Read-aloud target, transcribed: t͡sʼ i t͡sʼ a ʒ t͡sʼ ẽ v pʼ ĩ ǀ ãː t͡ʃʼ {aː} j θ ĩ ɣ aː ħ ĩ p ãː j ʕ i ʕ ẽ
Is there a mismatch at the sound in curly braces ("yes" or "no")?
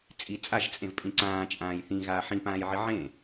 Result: yes